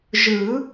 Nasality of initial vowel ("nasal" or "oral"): oral